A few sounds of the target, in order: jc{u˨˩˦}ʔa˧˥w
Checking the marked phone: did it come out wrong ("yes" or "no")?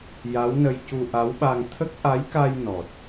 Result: yes